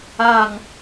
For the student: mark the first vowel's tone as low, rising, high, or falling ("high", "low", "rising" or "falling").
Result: falling